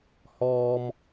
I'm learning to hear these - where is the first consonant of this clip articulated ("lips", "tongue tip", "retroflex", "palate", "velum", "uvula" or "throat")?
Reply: throat